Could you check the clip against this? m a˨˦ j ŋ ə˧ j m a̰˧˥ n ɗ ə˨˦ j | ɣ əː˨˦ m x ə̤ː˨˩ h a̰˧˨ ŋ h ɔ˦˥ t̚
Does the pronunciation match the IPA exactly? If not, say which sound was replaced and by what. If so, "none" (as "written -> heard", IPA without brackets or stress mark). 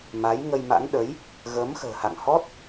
none